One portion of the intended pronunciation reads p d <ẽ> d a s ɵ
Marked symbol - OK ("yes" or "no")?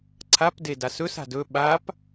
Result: no